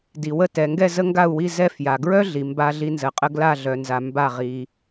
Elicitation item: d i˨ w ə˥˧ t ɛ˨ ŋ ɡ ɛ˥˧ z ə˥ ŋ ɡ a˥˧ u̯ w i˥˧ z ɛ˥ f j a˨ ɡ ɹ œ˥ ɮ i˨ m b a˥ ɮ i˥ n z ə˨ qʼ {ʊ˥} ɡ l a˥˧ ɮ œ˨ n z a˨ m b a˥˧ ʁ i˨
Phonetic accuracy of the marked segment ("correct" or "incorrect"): incorrect